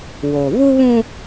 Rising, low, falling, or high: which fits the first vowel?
low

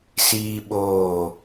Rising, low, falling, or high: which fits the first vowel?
high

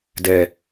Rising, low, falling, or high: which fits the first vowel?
low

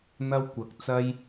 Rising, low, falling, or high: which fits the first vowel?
high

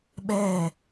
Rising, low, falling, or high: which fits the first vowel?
falling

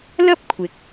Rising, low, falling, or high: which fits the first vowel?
high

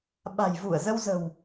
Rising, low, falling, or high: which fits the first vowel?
low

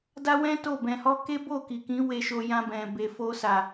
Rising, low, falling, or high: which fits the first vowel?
high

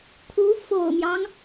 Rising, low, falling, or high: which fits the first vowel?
rising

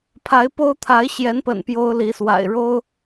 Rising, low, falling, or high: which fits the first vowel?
rising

